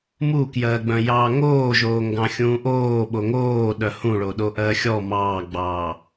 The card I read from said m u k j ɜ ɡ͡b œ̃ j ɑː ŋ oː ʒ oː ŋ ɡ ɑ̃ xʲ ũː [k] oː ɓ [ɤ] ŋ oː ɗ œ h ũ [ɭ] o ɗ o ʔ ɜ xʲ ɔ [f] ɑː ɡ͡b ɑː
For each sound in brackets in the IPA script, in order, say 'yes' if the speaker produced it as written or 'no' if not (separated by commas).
no, no, yes, no